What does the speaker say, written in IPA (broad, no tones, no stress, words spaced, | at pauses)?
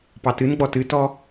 pɑtɨnɡ͡bɔ tɨtɔ